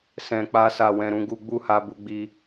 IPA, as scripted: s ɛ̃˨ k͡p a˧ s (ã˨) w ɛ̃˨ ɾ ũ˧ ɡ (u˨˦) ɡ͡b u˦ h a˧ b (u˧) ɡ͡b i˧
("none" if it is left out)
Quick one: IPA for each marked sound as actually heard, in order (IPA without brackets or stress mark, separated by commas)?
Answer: a˨, u˧, u˧